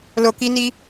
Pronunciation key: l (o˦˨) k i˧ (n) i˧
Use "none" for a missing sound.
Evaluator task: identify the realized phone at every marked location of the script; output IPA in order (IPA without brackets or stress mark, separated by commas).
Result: o˨, n